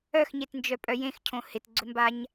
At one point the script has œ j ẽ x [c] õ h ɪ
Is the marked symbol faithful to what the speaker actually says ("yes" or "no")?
no